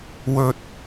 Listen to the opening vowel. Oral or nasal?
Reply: oral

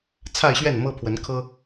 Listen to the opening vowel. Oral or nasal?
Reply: oral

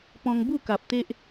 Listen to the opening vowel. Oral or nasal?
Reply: nasal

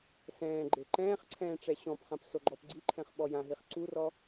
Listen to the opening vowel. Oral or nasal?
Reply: nasal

